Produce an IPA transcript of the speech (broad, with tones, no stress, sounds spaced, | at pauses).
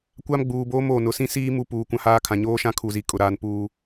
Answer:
kʷ a˦ m ɡ͡b uː˨ b oː˦ m oː˨ n ʊ˨˦ s ĩ˦ s iː˦ m u˦˨ p uː˨ kʷ ã˦ h aː˦ kʰ ã˨ ɲ oː˦ ʃ ã˦ kʰ u˨ z i˨ kʼ ʊ˨ ɾ aː˦ n p uː˦